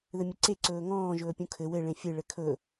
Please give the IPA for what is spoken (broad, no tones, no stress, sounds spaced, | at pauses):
ð ɘ mʲ ə ǀ e ǀ ɵː ŋ ɔ̃ː ʒ ɵː pʲ ũ kʰ ɘ w ɘ ɭ ẽ fʲ ɯ ɭ ɘ kʰ ɵ